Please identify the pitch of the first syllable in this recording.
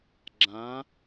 rising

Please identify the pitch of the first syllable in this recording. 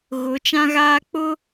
rising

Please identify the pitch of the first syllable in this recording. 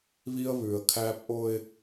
high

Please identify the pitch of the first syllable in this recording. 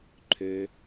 low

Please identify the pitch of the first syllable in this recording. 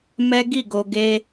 high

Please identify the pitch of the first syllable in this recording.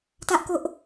high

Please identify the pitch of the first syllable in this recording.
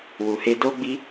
low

